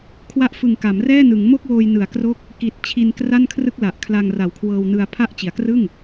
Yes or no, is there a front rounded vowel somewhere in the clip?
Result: no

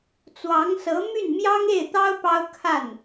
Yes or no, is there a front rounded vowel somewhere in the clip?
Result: yes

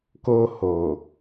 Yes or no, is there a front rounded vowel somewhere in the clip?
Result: no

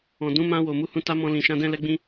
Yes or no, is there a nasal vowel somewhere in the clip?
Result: yes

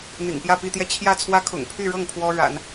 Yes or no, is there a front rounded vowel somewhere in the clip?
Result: yes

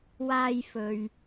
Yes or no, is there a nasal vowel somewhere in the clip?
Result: no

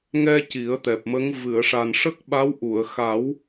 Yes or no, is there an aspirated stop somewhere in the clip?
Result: no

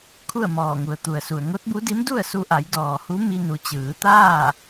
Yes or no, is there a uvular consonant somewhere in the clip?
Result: no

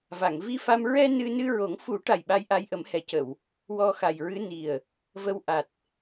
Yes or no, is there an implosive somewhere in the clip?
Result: yes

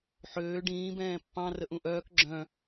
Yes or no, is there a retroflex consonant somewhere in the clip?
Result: yes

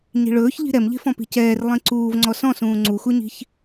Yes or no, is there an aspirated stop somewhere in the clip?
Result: no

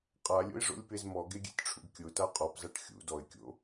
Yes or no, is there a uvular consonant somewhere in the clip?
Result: yes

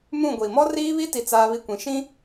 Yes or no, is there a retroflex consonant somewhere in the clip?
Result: no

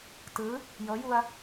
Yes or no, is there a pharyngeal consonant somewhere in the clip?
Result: no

